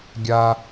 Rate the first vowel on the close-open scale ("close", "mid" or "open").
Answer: open